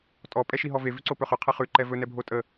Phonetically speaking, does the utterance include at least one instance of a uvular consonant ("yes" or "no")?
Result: yes